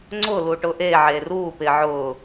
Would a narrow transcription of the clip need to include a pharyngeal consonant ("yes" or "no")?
yes